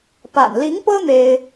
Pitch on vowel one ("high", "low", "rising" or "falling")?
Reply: low